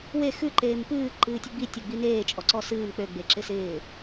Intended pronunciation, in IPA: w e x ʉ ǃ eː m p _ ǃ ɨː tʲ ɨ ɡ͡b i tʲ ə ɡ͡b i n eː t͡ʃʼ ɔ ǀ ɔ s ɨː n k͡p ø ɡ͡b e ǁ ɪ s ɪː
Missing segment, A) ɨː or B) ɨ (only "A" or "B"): A